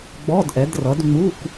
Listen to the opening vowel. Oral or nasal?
oral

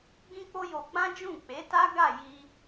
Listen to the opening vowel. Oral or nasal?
nasal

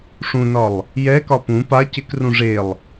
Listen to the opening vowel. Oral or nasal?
nasal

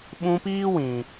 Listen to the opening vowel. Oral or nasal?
nasal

